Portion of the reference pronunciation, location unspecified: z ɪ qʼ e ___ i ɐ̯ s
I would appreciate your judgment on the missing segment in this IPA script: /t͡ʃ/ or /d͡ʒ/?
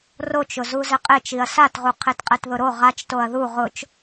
t͡ʃ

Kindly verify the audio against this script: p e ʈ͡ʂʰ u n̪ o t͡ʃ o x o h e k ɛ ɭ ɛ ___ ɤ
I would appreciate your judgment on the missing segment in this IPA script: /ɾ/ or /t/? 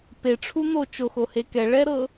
ɾ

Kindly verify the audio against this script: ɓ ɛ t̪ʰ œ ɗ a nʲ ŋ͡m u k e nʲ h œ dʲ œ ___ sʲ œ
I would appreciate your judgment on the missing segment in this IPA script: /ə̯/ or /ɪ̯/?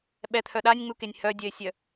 ɪ̯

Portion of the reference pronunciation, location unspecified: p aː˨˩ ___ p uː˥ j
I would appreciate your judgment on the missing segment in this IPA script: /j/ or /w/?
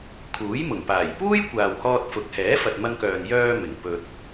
j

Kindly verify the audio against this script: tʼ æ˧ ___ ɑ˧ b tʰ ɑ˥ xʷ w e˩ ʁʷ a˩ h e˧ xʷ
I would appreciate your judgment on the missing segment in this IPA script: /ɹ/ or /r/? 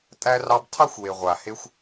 r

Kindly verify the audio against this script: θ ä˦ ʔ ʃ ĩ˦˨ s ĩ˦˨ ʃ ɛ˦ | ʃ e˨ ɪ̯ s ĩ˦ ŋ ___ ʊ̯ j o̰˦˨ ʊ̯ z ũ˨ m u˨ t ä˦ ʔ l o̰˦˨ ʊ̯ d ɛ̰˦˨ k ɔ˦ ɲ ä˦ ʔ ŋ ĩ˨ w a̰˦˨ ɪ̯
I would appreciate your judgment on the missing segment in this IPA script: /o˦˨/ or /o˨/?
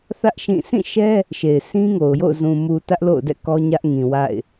o˨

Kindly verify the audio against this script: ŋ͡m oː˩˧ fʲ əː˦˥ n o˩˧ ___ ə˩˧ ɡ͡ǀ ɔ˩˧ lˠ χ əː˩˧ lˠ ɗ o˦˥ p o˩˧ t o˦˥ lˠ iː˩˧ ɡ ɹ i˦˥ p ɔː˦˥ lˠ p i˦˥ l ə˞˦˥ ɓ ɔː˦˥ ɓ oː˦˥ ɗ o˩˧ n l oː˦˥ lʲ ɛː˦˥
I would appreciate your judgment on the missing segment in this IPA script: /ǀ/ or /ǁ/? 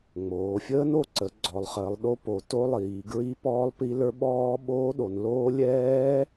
ǀ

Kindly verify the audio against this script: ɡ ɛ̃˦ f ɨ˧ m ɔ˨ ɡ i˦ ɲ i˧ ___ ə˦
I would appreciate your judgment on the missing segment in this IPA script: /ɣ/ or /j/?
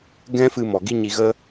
ɣ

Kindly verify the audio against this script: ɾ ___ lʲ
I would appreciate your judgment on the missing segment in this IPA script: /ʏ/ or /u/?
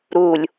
u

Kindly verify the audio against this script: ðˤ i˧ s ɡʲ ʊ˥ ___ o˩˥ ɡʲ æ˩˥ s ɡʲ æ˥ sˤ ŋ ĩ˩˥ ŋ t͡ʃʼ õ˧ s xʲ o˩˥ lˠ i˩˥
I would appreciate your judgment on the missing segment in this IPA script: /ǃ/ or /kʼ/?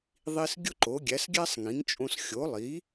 ǃ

